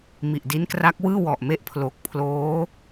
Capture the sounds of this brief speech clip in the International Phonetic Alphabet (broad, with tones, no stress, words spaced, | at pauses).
mi˨˩ʔ di˦˥nkra˦˥k̚wɯː˥˩ wɔ˨˩ʔme˦˥ʔpʰlo˨˩k̚ pʰloː˦˥